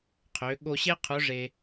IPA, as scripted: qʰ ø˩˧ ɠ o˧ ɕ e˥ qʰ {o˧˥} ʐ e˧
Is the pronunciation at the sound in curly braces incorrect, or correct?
correct